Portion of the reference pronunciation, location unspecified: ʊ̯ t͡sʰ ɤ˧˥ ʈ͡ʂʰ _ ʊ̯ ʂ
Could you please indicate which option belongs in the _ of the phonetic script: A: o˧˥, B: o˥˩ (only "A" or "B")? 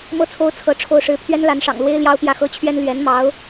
B